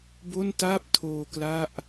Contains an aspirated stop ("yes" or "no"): yes